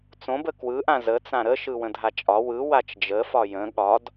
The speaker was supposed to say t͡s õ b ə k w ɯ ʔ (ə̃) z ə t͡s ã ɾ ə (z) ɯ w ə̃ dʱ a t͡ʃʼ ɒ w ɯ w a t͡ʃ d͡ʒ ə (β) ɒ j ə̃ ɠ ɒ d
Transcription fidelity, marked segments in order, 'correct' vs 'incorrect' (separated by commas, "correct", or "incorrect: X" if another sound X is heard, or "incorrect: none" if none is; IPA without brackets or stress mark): incorrect: ã, incorrect: ʃ, incorrect: f